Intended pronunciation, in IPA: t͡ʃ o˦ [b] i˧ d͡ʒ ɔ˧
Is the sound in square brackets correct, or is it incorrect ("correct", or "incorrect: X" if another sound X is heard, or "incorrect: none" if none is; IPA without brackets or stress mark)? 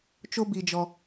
correct